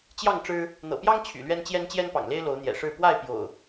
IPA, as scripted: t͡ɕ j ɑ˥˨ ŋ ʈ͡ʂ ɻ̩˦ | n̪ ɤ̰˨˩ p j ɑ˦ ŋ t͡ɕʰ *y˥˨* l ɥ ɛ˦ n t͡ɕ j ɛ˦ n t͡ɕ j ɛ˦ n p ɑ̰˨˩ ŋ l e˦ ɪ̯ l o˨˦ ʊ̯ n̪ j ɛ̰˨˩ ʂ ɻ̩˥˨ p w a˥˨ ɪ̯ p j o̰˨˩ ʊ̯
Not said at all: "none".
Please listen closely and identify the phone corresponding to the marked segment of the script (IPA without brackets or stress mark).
y̰˨˩